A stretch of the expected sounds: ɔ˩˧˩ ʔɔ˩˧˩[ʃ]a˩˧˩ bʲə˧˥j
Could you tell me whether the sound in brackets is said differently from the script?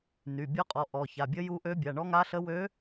yes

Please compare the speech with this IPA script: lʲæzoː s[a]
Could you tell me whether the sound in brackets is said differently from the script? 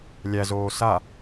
no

